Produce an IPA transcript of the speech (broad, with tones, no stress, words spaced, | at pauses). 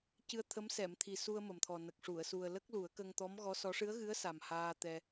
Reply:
cɨ˧ə̯t̪ʰə˧˥m sɛ˨˩˨mt̪ʰi˨˩ su˧ə̯mə˨˩mt̪ʰɔ˨˩nə˨˩k̚ ʂu˨˩˨ə̯su˨˩ə̯ lə˦˥k̚lu˨˩˦ə̯kə˧ŋ t̪ɔ˧˥mɣɔ˧˥sɔ˧˥ ʂɨ˧˥ə̯ɣɨ˧˥ə̯sa˨˩m haː˧t̪ɛ˧